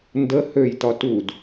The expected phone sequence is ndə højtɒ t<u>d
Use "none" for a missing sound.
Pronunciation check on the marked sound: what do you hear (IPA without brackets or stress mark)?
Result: u